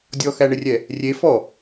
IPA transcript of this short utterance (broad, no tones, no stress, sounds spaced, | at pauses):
dʲ ɔ x æ ɳ ɪ rʲ ɛ | rʲ e f ɔ